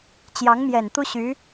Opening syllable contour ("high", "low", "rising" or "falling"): rising